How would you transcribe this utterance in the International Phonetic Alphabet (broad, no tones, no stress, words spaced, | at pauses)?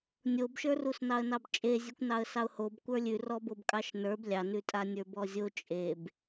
nʲobʃə˞rusnɑə̯ nɑbt͡ʃʼezʲʉkʷ nɑə̯sɑʊ̯hob kʷə˞lʲʉ rɔbobkʼɑʃnə˞b lʲɑnʉtʼanʲə˞ bɔzʲo t͡ʃʼeb